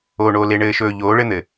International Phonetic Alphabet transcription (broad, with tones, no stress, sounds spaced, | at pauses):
oː˨ ɳ oː˨ l e˨ ɳ ɘː˨ ʃ ɵː˨ ʎ oː˨˦ ɭ ɘ˦ n̪ ɘ˨